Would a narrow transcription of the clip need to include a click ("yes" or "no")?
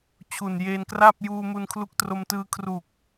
no